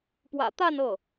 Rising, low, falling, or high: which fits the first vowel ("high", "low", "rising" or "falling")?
low